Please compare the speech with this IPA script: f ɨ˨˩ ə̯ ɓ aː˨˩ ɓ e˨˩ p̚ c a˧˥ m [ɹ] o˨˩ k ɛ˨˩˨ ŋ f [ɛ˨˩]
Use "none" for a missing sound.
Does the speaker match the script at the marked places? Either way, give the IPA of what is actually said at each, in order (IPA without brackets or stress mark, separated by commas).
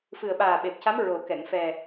ɹ, ɛ˨˩